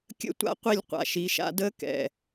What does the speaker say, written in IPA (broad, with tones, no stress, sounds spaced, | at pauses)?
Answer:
kʲ ə̰˦ tʷ a̰˦ qʷ i˦˨ lʲ qʷ a̰˨ ʃ i˨˦ ʃ a̰˧ d ə˦ k ɛ̰˨